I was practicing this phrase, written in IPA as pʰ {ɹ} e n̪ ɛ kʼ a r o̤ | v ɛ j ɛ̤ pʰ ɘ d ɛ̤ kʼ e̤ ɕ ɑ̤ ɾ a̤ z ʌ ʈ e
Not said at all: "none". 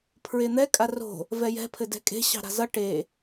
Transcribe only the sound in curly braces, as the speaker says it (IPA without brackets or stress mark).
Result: ɹ